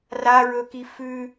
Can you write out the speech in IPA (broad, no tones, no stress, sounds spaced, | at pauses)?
r a ɹ ɵ k i f ʉ